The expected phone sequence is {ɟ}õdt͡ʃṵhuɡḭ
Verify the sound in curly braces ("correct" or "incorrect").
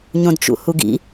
incorrect